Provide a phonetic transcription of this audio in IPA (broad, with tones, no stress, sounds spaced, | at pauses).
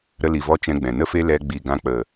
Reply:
ɾ ə˧ l i˨ v ɔ˧ t͡ʃ ɛ̃˧ ɡ͡b ɛ̃˨ n ə˦ f e˦ l ɛ˧ ɡ͡b i˨ ɡ ã˧ k͡p ə˨